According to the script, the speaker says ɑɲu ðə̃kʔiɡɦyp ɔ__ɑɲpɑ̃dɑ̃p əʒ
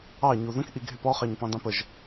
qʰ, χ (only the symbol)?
χ